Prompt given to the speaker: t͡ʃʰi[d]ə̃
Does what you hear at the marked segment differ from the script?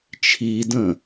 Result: no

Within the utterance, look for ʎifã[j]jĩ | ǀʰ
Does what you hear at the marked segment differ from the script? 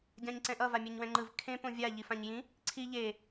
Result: yes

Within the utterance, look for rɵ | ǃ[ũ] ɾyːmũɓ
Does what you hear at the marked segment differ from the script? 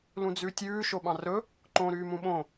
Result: yes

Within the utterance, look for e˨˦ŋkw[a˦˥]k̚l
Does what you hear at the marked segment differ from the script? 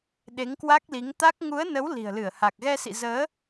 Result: no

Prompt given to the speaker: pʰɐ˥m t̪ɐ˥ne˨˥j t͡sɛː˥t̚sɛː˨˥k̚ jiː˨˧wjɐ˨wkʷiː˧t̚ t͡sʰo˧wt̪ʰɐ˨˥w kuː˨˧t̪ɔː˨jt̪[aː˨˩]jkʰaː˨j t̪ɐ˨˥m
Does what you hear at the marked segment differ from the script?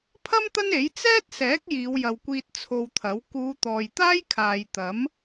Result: yes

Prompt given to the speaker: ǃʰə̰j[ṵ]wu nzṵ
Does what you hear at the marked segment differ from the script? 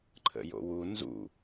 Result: yes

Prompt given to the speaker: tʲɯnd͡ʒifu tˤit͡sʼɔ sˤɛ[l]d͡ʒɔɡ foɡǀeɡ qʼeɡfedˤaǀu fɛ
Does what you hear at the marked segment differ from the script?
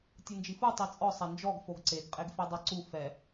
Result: yes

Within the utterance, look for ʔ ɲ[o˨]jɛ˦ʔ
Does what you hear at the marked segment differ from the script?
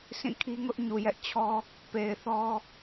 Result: yes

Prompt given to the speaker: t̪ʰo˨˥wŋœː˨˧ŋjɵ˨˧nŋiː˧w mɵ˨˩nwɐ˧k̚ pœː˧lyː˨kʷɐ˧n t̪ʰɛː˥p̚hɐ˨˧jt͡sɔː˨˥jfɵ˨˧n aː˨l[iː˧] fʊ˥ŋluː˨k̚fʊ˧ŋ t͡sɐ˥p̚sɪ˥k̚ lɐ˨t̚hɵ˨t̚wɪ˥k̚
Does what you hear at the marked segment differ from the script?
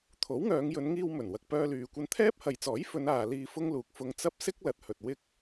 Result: no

